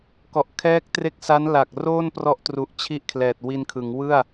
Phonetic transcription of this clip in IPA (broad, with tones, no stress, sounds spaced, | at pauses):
k ɔ˨˩ ʔ kʰ ɛː˦˥ k̚ t r e˦˥ k̚ s a˦˥ n l a˨˩ k̚ r oː˥˩ n p r ɔ˦˥ ʔ t r u˨˩ ʔ t͡ɕʰ i˦˥ ʔ kʰ l ɛː˨˩ t̚ w i˧ n kʰ ɯ˩˦ ŋ w ɯ˥˩ a̯